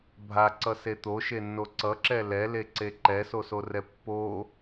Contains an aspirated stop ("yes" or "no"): no